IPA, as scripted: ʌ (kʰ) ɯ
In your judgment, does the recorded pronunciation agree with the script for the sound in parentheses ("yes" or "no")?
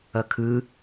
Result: yes